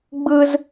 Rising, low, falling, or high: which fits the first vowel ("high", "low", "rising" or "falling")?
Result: high